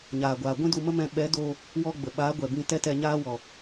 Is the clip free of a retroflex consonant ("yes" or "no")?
yes